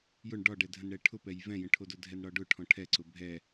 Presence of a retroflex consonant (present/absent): present